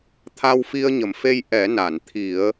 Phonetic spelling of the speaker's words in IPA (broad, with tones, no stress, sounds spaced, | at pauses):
t̪ʰ a˧ w f i˧ ə̯ ɲ ə˨˩˨ m f e˧ j ʔ ɛ˨˩˦ n a˨˩˨ n t̪ʰ i˨˩˦ ə̯